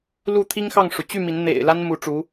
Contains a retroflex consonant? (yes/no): yes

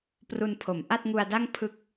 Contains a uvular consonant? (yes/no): no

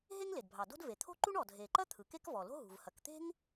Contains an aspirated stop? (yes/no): yes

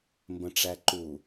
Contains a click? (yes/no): yes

